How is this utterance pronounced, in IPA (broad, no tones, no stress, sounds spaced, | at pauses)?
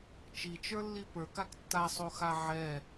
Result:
t͡ʃ i t͡ʃ ə˞ lː i p ə˞ k a k tː a sˤ o x a ʕ ɛ